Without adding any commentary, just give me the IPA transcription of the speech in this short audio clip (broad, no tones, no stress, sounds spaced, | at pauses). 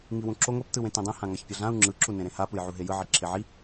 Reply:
ŋ i w ũ ǁ o ŋʷ ɛ p t ɯ w ẽ t ẽ dˤ ẽ h ã ŋ a ç pʲ ʌ ɮ ã u̯ ŋ͡ǁ ɯ ǁ u n ẽ ɾ ẽ h a p ɯ j ʕ u ɦ e j ɯ ʕ i ǁʰ e ʕ i